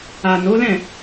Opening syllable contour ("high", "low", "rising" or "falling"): low